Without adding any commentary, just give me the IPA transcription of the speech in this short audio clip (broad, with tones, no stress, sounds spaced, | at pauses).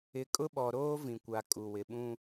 ɪ˨ kʼ ʊ˦ ɓ ɔ˨ ɾ oː˦ v ĩ˨ kʷ a˨ kʼ u˨ w ɪ˨ ɓ ũ˦